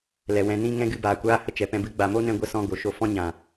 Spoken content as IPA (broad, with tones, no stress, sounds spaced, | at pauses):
l ɛ˨ w ɛ̃˧ n ĩ˦ ŋ ɛ̃˦ ɡ ɨ˧ b aː˨ kʷ aː˦ h ə˦ t͡ʃ ɛ˨ p ɛ̃˧ b ɨ˦ ɡ͡b a˨ m o˦ n ɛ̃˧ ɡʷ ə˦ s ɔ̃˦ ɡ o˨ ʃ o˧ f ɔ̃˦ ɲ ã˨